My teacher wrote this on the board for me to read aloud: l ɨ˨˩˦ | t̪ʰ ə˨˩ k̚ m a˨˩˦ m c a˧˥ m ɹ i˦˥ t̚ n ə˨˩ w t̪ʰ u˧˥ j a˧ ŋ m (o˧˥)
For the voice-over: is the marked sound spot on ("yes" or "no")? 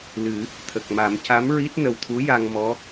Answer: no